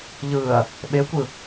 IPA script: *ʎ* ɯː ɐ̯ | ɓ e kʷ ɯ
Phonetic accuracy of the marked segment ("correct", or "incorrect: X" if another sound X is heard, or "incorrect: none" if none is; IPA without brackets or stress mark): correct